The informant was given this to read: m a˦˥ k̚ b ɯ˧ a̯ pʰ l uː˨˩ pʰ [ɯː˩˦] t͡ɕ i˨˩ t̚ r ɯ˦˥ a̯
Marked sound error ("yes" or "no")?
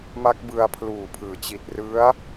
no